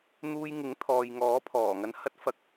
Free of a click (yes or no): yes